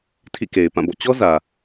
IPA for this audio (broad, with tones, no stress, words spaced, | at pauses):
tʰḭ˦˨ke˨ɪ̯pã˦˨bɔ̰˦˨ t͡ɕɔ˦ zä˨